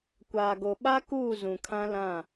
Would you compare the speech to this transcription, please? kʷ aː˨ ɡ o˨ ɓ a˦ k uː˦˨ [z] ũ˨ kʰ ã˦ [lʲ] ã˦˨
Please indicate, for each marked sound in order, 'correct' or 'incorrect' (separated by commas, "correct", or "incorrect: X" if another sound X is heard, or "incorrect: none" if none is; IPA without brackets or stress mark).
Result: correct, incorrect: l